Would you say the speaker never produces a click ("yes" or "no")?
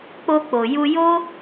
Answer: yes